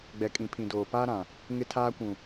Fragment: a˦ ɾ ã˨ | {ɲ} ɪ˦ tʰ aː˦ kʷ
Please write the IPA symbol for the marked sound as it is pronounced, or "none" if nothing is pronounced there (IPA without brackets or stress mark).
ŋ